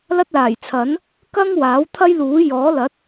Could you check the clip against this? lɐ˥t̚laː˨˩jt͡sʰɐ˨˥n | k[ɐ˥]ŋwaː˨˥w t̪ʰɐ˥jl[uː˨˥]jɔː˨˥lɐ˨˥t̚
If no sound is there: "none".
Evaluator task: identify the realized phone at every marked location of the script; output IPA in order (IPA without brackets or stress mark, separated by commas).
ɐ˥, uː˨˥